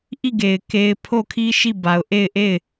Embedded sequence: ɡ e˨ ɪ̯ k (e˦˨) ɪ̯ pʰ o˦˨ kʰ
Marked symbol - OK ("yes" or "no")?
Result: no